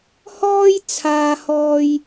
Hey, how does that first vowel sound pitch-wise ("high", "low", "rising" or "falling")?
high